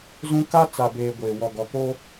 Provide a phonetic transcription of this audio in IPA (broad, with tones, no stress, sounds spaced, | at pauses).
z ũ˦ k a˦ t͡s a˨ b eː˨ ɡʷ e˨ w ɔ˨ ɡ ɔ˨ k o˦